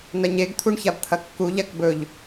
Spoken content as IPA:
nɐɲeɡ t̪ʰuɳçabt̪ʰɐkːu ʎakbɵʎ

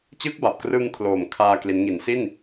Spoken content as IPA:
t͡ɕɯː˦˥k̚ba˨˩p̚krɯ˧ŋ kʰloː˨˩mkʰaː˧ kli˦˥n ŋi˩˦nsi˥˩n

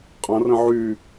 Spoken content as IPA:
qʼɐ̃rə̃ ʕy

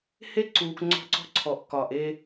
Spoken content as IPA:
he˦ǀuː˨k ŋ͡ǀɔ̤˦ǀɔ̤˦ǀʰɔ˨ʔ kɒː˨ʔe˦

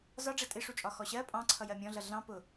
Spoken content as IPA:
zɒ ɖ͡ʐɛtʼɪʂut͡ʃʼɒ xɔɕɜ pʼɑ̃ ǀʰʌjɜmʲɔ̃ɮʌ ɮɑ̃ pʊ

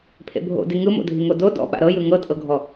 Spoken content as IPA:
pʰḛbʱo̰di ŋɯmo̰dʱiŋo do dɔ̰ ɓa̰ɾɤjɯ ŋɤtʼɤɡʱɔ

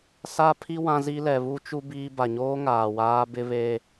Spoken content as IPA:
sa˦pʰi˦ wã˦zi˦ lɛ˨βu˦t͡ʃu˦ biː˦ ba˨ɲoː˦ ŋaː˨waː˦ bɪ˦βe˦

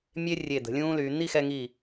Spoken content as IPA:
mʲe˥ rʲe˧˩d̪ə̤˩˧lʲũː˥lyː˩˧ n̪i˥˧xɛ˧ŋi˧˩

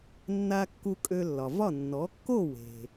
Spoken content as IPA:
nːa˧ kːu˧kʼø˧lːɒ˩vɒ˥˩ nːɔ˩˥kːo˥˩ we̤˩

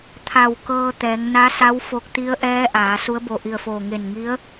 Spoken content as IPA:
t̪ʰa˧˩wkɤː˧ t̪ɛː˩˧ŋna˧˥sa˧˥w fo˧˥k̚ t̪i˧˥ə̯ ʔɛː˧˥ʔaː˩˧ su˧˥ə̯bo˧˩ʔi˧˩ə̯foː˧˩ ŋe˧˩nŋi˧˥ə̯

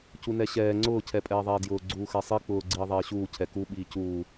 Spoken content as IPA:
cunɛɕɛː ŋ͡ǀʊː cʰɛpʼɛːðˤɛːdjʊː ɡ͡ǀuːxɛsˤi k͡pʊː ɡ͡ǀiːðˤɛːɕuː cʰɛku ɓiːcuː

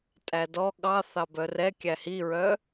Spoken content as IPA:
tʼædɔ ɠɑ θɑbœrɛ kʲæhiɹœ

